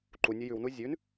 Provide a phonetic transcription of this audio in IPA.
ǃ u nʲ ə j ʉ w n u zʲ ʉ n

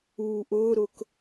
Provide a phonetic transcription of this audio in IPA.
uː ʔ ʊː ɾ ʊ k

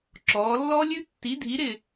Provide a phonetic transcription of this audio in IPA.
ǁ ɔː˩˧ lː ɔ˥ lʲ ʉ˥ tː i˨˥ dʱ i˨˥ ɾ ɪ˦˨

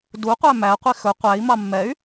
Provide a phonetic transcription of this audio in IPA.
d u qʷ æ m æ qʷ i x ɵ qʷ æ i̯ m ɑ mː ɛ y̯

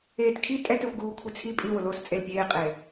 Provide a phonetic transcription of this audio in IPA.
eː t kʰ i tʼ ɛ t ɛ xʷ ɡ uː kʷʰ i t͡sʰ i pʼ i w ʊ l oː s t͡sʼ e l pʲ eː qʼ eː

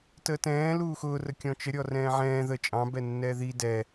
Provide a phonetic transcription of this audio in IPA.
t əː t ɛ̃ː l uː x ʊː r ə kʲ ɔ̃ t͡ʃ ə ɾʲ ɔ r ɛ̃ː ʕ ɛ̃ː ð ə t͡ʃʼ ɑ̃ b ɛ nː ɛ ð i d ɛ

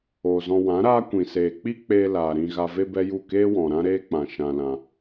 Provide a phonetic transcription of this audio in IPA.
oː˨ z ɔ̃˧ w ã˨˦ ɾ aː˦ kʷ ĩ˨ s eː˨ k͡p i˦ k͡p eː˧ l aː˨ ɾ ĩ˧ ɣ a˧ v e˦ b ɛ˦ j u˦˨ k eː˦ w ɔ̃˨ ɾ ã˦ ɾ eː˦ k͡p ã˨ ʃ ã˧ l ã˧

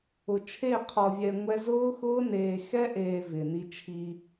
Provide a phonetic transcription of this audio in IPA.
ʊ˨ t͡ʃʰ e˦˨ qʰ ɔ˨ vʲ ɛ˨ ŋʷ ɛ˦ z ʊː˦ x ʊː˦ n eː˨ x ɛ˦ ʔ eː˨ v ɪ˨ n i˦ t͡ʃʰ i˦

